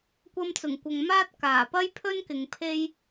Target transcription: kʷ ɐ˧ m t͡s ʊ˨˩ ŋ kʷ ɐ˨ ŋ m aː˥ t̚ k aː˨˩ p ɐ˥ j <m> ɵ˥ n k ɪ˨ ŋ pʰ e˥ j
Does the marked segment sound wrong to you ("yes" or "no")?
yes